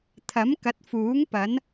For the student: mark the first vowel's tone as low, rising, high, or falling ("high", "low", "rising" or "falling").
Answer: rising